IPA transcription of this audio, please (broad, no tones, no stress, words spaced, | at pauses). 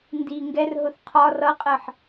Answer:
ndi ŋɡɛrɦʊθ qʰɒ rʌqʼɜħ